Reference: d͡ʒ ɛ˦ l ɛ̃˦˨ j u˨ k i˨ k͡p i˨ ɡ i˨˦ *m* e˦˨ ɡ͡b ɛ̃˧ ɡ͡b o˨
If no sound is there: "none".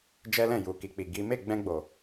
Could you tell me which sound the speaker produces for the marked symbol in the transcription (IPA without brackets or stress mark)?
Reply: m